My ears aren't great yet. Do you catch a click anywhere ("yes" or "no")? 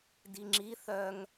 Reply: yes